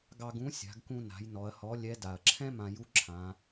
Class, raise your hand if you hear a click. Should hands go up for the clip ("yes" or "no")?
yes